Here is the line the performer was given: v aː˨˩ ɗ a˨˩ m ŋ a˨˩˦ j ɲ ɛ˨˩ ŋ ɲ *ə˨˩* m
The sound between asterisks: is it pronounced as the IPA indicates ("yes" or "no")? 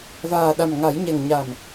no